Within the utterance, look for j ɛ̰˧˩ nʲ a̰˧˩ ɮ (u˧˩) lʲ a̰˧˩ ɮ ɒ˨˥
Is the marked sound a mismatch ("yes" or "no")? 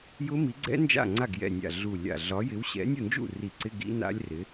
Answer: no